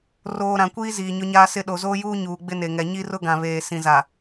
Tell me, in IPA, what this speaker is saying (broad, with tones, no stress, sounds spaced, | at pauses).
r oː˨ ɾ ã˨ kʷ iː˦ z iː˨ ɲ ʊ˦ ɲ aː˦ s ɪ˦ ɗ o˨ z oː˦ j uː˦ ɲ uː˨ ɡ͡b ɪ˦ n e˨ ŋ ɛ˨ ɲ i˦ r ʊ˦ ɡ ã˨ β eː˨ s ĩ˨ z a˨